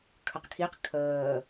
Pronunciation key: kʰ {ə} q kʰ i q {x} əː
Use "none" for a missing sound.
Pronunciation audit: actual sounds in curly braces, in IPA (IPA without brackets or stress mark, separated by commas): ə, kʰ